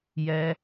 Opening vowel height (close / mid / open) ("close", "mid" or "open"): mid